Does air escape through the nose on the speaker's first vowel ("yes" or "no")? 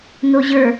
no